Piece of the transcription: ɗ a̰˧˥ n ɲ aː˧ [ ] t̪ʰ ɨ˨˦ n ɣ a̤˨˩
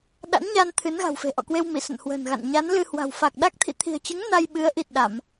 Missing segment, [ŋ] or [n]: n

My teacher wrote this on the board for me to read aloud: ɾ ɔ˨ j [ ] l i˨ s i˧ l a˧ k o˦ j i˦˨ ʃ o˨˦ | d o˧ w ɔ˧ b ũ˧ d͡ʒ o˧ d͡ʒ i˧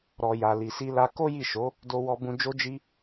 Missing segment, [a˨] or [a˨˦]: a˨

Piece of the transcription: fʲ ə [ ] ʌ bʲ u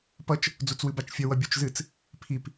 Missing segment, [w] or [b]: w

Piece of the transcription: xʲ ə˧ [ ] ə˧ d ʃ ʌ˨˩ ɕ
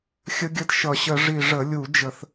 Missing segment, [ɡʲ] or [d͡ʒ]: ɡʲ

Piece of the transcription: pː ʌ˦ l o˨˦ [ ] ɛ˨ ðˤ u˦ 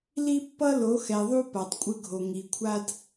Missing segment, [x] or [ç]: x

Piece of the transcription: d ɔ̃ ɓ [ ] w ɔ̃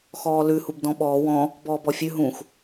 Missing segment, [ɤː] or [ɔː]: ɔː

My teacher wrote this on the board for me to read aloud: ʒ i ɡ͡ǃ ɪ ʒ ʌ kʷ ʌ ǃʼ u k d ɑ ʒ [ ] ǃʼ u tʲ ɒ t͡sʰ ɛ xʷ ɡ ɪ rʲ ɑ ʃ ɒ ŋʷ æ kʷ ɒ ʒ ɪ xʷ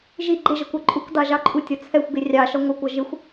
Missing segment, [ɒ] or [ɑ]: ɑ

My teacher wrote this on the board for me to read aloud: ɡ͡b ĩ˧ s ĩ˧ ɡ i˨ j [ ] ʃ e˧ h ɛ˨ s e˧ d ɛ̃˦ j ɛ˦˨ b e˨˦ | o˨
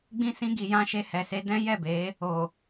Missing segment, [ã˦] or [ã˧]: ã˧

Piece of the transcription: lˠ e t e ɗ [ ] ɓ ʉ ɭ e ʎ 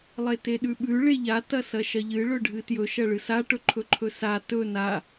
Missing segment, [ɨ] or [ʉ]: ʉ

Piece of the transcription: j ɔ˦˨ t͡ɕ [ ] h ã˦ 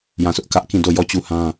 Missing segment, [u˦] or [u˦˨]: u˦˨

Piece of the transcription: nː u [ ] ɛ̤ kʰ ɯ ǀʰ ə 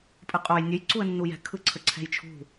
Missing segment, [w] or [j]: j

